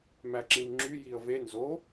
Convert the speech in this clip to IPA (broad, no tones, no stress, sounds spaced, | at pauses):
m æ ǁ ĩ m ŋ͡ǁ y j i ə̯ v e n z o